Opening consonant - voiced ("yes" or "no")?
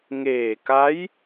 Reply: yes